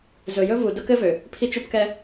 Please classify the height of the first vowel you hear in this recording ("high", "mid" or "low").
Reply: mid